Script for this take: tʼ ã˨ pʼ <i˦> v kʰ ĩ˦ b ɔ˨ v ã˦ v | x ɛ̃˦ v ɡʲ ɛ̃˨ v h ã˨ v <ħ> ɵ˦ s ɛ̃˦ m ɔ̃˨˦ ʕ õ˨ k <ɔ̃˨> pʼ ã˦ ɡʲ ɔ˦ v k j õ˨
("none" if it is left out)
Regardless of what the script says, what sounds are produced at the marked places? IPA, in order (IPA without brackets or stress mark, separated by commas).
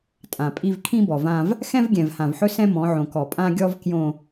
i˦, ħ, ɔ˨